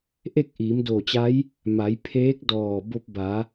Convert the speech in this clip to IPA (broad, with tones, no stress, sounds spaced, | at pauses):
ʔ e˥˨ k̚ ʔ iː˩˧ m d o˧˩ t͡ɕ a˧˥ j | m a˩˧ j pʰ eː˧˥ k̚ d ɔː˧˩ b o˧ p̚ b a˩˧